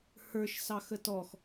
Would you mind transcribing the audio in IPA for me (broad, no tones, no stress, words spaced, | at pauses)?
hə˞ʃsɑxə tɔx